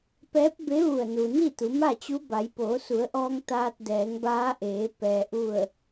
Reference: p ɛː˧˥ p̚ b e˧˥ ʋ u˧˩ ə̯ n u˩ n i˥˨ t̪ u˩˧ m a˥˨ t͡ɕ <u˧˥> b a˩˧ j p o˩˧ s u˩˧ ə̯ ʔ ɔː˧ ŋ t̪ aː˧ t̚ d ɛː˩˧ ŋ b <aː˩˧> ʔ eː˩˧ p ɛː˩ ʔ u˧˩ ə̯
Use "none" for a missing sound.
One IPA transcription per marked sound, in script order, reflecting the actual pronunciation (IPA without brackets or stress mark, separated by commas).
u˧˥, aː˧˥